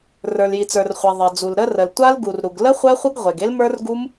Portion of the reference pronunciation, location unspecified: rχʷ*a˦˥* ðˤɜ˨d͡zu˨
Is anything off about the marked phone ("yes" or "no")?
yes